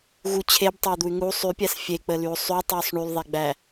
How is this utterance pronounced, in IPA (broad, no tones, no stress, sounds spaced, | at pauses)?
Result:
ɣ u t͡ɕʰ e b tˤ e u̯ d̪ u y̯ ŋ u sˤ y pʲ æ s fʲ e k͡p ə l y u̯ sˤ y tˤ y sˤ ɳ y l ðˤ e ɡ͡b æ